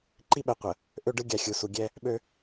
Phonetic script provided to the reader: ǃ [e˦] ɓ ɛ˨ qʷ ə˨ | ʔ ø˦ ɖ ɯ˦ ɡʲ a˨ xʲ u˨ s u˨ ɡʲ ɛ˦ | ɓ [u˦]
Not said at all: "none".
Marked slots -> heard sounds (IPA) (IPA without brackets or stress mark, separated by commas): i˦, ø˦